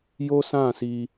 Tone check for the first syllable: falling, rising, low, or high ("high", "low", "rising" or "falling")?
high